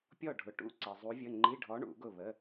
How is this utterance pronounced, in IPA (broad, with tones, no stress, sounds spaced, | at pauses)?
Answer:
pʲ ɔ˥˨ ɖʱ ʊ˨ ʈ ṵ˧˥˧ ǀ ɛ˨ zˤ u˧˥ vʲ ə˧˥˧ ŋ͡ǃ i˧˥˧ ɖʱ ɔ˧˥ ɳ ṵ˨˩˦ ɡ ʊ˥˨ β ə˧˥˧